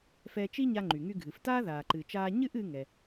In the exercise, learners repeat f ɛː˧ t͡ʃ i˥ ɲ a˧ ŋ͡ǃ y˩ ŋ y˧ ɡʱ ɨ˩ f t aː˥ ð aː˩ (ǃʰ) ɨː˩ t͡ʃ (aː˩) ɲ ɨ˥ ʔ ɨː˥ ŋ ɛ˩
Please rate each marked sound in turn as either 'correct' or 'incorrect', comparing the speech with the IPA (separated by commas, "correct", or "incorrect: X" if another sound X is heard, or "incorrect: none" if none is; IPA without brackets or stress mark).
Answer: incorrect: ǃ, incorrect: aː˧